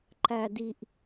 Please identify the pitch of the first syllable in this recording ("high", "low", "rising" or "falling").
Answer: low